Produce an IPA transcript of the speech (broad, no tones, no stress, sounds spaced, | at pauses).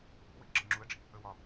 ṵ w ḭ ɡ͡ǁ ə ŋ͡ǁ u ə̯ ɖ͡ʐ ḭ | ə w ɒ